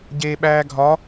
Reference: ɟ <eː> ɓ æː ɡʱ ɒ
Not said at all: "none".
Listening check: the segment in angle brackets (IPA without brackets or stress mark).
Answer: eː